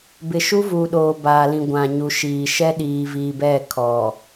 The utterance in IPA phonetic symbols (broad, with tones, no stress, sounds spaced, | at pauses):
b ɪ˨ ʃ u˦ v u˨ ɗ oː˨ b aː˨ l ĩ˨ ɡʷ ã˨ ɲ u˨ ʃ iː˨ ʃ ɛ˦ ɗ iː˨ v iː˨ b ɛ˦˨ kʰ ɔ˨